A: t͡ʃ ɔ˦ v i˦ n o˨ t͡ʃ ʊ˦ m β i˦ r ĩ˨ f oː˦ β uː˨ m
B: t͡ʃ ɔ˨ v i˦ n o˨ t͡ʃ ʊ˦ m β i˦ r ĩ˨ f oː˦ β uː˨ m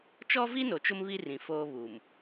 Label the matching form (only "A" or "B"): A